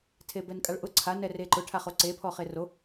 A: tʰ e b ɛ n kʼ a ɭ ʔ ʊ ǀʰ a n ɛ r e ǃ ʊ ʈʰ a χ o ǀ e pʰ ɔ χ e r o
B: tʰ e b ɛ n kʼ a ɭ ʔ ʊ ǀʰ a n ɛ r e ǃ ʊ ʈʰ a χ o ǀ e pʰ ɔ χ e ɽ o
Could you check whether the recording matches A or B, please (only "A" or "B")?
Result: A